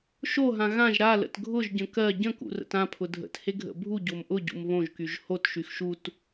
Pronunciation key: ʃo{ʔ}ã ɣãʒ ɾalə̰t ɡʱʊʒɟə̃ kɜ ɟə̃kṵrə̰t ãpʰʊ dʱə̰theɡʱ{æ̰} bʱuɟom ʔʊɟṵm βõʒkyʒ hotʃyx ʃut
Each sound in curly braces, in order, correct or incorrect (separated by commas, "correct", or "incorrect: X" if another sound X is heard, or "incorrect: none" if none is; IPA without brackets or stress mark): incorrect: ɦ, incorrect: ə̰